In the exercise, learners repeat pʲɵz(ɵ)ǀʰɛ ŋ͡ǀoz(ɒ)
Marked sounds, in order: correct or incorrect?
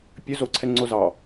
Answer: incorrect, incorrect

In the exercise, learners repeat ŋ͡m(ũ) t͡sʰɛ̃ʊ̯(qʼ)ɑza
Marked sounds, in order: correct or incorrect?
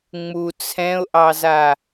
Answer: incorrect, incorrect

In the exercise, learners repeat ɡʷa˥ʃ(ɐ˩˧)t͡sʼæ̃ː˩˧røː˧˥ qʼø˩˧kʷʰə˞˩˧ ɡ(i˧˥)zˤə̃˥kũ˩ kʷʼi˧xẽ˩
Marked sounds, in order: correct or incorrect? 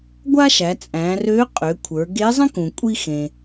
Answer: incorrect, incorrect

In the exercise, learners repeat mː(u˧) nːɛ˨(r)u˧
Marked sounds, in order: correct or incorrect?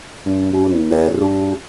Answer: correct, correct

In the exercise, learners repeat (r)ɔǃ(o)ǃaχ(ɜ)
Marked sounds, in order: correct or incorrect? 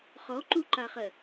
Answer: incorrect, incorrect, correct

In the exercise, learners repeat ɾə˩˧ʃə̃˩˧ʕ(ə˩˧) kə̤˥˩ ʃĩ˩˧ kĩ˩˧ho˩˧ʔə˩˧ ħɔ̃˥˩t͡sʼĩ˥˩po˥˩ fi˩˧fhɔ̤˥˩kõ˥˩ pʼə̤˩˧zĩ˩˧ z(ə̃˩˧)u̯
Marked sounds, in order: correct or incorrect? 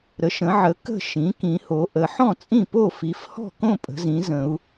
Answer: correct, correct

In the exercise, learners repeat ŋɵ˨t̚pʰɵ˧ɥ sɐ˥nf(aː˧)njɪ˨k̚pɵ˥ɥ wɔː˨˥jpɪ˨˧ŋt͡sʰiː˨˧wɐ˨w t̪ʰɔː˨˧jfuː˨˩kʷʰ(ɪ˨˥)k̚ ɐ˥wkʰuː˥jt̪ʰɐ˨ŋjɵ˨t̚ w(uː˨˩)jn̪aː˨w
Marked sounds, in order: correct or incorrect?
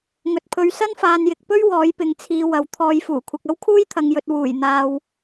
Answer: incorrect, incorrect, correct

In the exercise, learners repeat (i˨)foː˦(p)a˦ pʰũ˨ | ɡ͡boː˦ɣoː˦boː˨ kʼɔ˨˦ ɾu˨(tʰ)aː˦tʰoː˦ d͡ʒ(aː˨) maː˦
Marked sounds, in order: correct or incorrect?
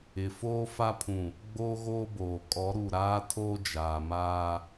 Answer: incorrect, incorrect, incorrect, correct

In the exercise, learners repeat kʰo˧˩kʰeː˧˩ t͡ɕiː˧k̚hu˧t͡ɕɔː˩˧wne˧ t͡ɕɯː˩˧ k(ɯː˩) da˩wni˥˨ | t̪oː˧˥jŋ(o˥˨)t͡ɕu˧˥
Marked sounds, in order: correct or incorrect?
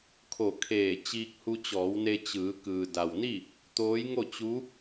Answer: correct, correct

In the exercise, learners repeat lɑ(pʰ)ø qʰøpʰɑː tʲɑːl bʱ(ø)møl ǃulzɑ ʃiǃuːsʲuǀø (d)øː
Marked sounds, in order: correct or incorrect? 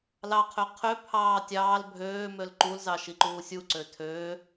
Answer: incorrect, incorrect, incorrect

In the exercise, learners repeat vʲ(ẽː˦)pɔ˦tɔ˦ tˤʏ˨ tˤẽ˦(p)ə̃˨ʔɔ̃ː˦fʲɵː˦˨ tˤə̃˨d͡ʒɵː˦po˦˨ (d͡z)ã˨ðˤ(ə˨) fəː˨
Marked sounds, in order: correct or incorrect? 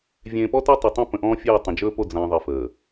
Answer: incorrect, correct, correct, correct

